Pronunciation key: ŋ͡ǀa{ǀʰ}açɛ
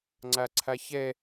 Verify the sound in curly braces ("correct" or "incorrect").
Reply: correct